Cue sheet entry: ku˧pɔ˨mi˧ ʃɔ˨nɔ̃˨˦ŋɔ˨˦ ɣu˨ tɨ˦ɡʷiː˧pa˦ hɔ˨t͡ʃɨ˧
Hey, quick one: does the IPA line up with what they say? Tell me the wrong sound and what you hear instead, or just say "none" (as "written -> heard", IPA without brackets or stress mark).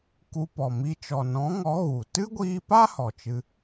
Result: ʃ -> t͡ʃ